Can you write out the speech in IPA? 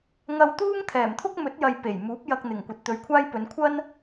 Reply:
ŋɐ˧wt̪uː˥ŋt̪ʰɛː˨˩mt̪ʰʊ˥k̚ mɵ˨˥t̚jɐ˨j pe˨˩jmuː˨˥p̚ jɐ˧k̚n̪ɪ˨˩ŋ kʷɐ˨t̚t̪ɵ˨˧ɥkʷʰaː˥jpɵ˨˧n kʷʰɐ˥n

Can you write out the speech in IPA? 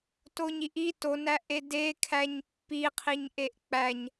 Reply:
toɲiʔi tonæʔe dekʰæɲ pːiqʰiɲʔeʔ k͡pæɲ

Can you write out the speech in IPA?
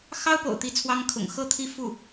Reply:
xɑ˥ʊ̯po̰˨˩ʊ̯ t̪i˥˩t͡sʰwɑ˥ŋ kʰʊ̰˨˩ŋ xɤ˥˩t̪ʰi˥ fu˥˩

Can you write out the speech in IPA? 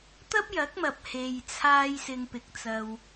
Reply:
t̪ɐ˥p̚jɐ˨˥k̚mɐ˨p̚ he˨jt͡sʰaː˧j sɪ˧ŋpɪ˨˥k̚t͡sɐ˧w

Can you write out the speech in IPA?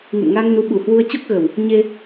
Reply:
ŋɨ̰˧˨mŋa˧ŋnu˨˦ɓu˨˩ hwu˧ə̯t͡ɕo˦˥k̚ɣə˨˩w | ɲe˧

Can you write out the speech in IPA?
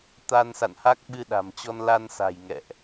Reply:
t̪a˧nsa̰˧˨nha˦˥k̚ ɓɨ˧ɗa̤˨˩mt͡ɕɔ˧n la˧nsa̤˨˩j ŋɛ̰˧˨ʔ

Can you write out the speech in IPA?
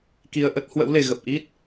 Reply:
ki˧ə̯ʔə˦˥t̚ hwə̰˧˥wle˨˩ɣə˨˩p̚ʔi˦˥t̚

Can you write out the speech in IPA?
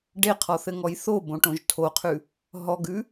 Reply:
ɖeqʰɔθɘŋɔj θobõʈõʒ tʰoqʰʉ | ɦɔɡʉ

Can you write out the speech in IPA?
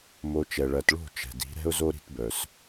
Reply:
mo˧t͡ʃɛ˨ ɭɜ˨tɭo̤˦˨ t͡ʃɛ̤˨di̤˨˦ ɾɛ̤˦ʊ̯zo˦ ɾi̤˧tbœ˨s

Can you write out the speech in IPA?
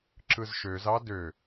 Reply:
ǁɯzʃøzɑ dø

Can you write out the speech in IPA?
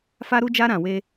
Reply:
fa˦ɾu˦d͡ʒa˦ ɾã˧we˦

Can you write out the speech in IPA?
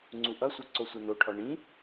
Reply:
ŋ͡ǀuʔʌsʷʌ ǀosʷʌnoʈʰɔ ɳĩ

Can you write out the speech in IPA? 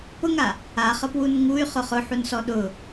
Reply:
pʊŋa | aχɤpwun ŋuy̯χʊ χʊħunsɔ ɗʊ

